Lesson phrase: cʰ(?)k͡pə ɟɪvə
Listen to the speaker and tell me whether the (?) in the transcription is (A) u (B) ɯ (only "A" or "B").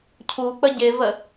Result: A